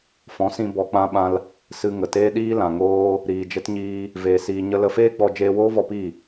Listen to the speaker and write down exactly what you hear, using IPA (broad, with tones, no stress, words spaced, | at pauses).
fɔ̃˨˦sĩ˧ bɔ˧k͡pã˦ɓã˦l | sɨ˧ ŋə˨teː˦ ɗiː˦lã˨ŋoː˦ | ɾiː˨d͡ʒə˦t ɲiː˦ | veː˨siː˨ ɲə˧lə˧feː˦ ɡ͡bɔ˧ d͡ʒeː˧woː˦vɔ˧ pi˦˨